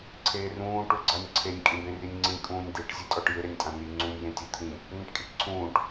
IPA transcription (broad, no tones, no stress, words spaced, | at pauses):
ǀʰeːrũː ʈuɡ͡ǀanʲǀʰenʲ kʼĩbẽrinʲŋ͡ǀĩ kʼũːnʲd̪eʈ zʲetʼɔʈjɪ ɾenʲtʼãni ŋ͡ǀunʲ jẽtʲot̪ʰĩ | n̪ẽʈkʼiʈǀʰũːʈ